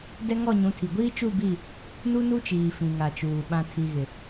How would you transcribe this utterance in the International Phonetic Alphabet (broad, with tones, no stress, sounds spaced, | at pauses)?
d ɛ˦ ŋ ɔ˦˨ ɲ ũ˨˦ tʰ i˨ ɡʷ iː˦ t͡ʃ u˦˨ b i˦˨ | n u˦ n u˦ t͡ʃ iː˨ f ĩ˨ ŋ a˨ t͡ʃ uː˨ ɓ ã˨ tʰ i˨ ɣ ɪ˨